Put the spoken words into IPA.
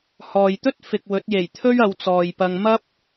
h ɔː˨ j t̪ ɵ˥ t̚ f ɪ˨ k̚ w ɵ˨˥ t̚ j e˨˩ j t̪ʰ ɵ˥ ɥ ɐ˨˧ w t͡s ɔː˨ j p ɐ˧ ŋ m ɐ˥ p̚

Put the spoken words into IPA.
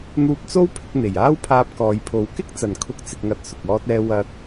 n̪ uː˧ p̚ t͡s o˥ w pʰ ɪ˧ k̚ n̪ e˨˩ j aː˥ w pʰ aː˧ p̚ k ɔː˨˧ j pʰ o˨˥ w k ɪ˥ k̚ t͡s ɐ˨˩ n kʰ ʊ˥ k̚ t͡s ɪ˧ k̚ ŋ ɐ˧ t̚ s ʊ˨ k̚ ɔː˥ t̚ ɛː˥ w ɐ˥ t̚

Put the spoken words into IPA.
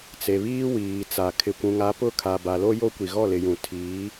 t͡s e˨ β iː˦ w iː˨ t͡s a˨ kʰ ɪ˨ kʷ ũ˨ ŋ a˨˦ p ʊ˦ kʰ a˨ b a˨ l o˦ j o˦ kʷ i˨ ɣ ɔ˦˨ l ɪ˨ j ũ˨ tʰ iː˨˦

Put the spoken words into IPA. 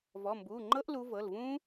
v ɔ˩˧˩ m b uː˩˧˩ ŋ͡ǃ ɤ˦˥ ʔ l u˨˦ v ɤ˩˧˩ l v ũː˦˥

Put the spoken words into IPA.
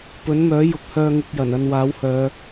p ɵ˨˥ n m œː˨˥ j ʊ˨ k̚ h œː˧ ŋ ɪ˧ k̚ j ɐ˨˩ n ɐ˧ n w aː˨˥ w h œː˨˧

